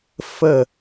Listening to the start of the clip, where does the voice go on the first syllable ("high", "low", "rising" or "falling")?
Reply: falling